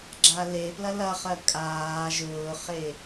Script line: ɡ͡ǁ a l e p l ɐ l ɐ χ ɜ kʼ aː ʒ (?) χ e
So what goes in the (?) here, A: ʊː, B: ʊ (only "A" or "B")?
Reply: A